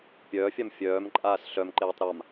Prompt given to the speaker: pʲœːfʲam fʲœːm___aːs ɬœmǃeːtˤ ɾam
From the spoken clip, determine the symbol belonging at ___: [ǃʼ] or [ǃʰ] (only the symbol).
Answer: ǃʼ